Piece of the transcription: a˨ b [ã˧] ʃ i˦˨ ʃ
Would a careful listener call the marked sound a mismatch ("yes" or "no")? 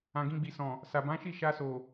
yes